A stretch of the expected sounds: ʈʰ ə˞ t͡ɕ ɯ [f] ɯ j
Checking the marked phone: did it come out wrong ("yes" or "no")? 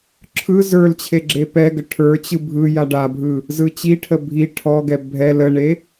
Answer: yes